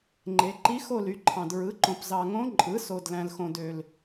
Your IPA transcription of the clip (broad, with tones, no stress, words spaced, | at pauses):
ŋ͡ǃe˩˧ ǃi˧˥xo˥˨ly˩˥ǃʰɑ̃˨˩d ɹɯ˩˥ǃõ˨˩pzɑ˨˩ ŋõ˧˥ ǃʼɯ˩˥ so˨˩d læ̃˨˩lxõ˨˩ dø˨˩l